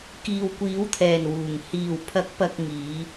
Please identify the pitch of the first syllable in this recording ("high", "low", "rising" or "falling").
low